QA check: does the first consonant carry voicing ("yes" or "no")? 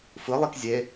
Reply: no